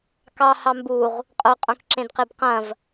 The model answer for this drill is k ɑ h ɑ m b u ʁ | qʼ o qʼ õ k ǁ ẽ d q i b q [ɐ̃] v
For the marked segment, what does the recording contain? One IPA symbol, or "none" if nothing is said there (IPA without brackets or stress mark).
ɐ̃